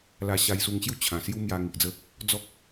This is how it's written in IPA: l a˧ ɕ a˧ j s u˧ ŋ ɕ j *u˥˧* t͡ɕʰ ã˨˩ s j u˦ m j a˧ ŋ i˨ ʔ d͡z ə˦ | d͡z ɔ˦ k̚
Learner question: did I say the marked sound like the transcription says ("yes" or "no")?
yes